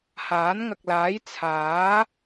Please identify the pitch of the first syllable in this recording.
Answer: rising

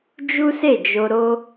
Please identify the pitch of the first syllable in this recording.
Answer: high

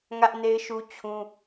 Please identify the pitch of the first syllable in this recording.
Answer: high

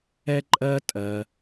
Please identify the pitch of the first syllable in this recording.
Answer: high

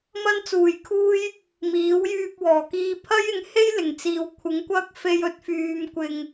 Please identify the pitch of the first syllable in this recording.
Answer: high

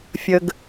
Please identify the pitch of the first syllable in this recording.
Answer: low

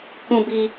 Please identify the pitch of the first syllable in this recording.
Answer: high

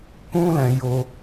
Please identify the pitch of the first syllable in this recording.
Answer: high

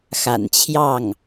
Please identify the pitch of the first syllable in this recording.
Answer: low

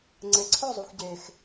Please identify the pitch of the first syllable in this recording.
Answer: low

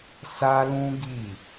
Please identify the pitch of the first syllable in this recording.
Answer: high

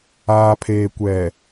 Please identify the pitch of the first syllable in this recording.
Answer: low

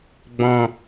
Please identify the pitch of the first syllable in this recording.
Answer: low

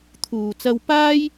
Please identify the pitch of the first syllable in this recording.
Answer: low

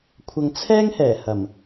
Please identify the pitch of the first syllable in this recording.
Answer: low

